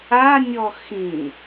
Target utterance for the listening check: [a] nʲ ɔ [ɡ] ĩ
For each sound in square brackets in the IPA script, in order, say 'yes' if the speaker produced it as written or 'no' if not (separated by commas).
yes, no